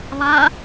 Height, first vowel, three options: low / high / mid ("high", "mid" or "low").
low